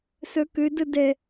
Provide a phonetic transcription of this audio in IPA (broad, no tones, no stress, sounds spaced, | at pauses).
s œ k ø d ə d ɛ